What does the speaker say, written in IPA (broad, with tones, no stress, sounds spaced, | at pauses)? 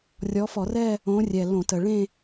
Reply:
rʲ ɔ˨˦ f ɔ˧˩˧ r ɛ˥˧ | õ˨˦ rʲ ɛ˨˩ l õ˧˩˧ t ə˨˩ ɭ ẽ˥˧